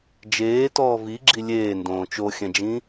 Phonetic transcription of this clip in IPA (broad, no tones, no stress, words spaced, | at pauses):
d͡ʒeːtɔː viɡ͡ǁi lʲeːndõː t͡ʃoxʲɛ̃d͡ʒĩ